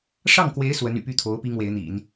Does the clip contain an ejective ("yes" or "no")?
no